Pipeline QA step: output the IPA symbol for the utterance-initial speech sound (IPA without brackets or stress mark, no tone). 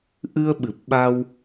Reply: ʔ